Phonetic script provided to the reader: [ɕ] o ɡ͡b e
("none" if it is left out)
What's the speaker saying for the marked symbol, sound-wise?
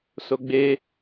s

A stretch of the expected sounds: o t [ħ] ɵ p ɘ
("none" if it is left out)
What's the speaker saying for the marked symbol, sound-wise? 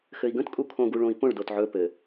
ʕ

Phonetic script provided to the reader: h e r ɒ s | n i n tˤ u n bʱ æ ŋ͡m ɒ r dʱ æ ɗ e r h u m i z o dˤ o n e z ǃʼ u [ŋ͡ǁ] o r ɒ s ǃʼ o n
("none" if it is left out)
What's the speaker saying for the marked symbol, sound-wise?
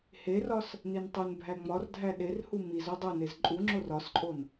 ŋ͡ǁ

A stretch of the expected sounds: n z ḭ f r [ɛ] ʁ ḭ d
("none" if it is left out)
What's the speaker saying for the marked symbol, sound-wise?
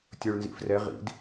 ɛ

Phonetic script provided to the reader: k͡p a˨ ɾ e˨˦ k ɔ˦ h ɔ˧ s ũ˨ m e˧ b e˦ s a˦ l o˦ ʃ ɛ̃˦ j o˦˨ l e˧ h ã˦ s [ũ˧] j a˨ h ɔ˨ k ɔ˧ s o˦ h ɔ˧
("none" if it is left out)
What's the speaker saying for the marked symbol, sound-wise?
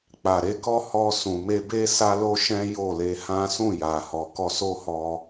ũ˦˨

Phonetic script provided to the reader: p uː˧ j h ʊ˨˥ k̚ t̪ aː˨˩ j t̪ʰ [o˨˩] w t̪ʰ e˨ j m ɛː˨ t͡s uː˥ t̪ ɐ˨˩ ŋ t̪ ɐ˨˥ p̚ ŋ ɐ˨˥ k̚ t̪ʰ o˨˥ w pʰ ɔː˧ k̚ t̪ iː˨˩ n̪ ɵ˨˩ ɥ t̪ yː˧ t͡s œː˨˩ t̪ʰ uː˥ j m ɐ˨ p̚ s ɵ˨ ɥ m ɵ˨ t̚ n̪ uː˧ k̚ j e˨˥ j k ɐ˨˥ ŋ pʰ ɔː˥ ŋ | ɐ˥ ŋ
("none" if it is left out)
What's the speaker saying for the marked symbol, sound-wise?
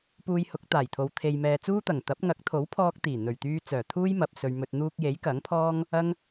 o˨˧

